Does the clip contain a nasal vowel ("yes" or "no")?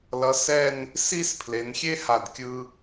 no